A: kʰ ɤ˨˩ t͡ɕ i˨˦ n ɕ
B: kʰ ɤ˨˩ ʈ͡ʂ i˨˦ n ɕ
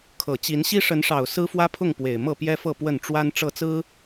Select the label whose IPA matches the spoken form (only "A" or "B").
A